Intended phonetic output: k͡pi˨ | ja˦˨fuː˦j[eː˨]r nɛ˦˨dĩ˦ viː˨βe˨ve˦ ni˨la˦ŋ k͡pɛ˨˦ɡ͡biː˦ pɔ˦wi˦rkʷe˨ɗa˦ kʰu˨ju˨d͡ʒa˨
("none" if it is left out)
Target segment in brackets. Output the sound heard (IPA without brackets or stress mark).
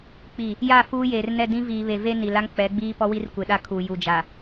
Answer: eː˨